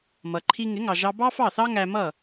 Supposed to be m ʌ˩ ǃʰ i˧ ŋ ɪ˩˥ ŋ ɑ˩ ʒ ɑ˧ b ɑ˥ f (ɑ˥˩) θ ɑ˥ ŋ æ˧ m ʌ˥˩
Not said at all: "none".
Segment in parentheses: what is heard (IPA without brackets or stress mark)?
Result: ɑ˥˩